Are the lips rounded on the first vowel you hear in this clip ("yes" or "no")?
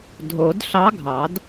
yes